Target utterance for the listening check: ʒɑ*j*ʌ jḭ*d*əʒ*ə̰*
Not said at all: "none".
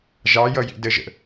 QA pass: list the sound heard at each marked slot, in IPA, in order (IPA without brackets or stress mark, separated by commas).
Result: j, d, ə̰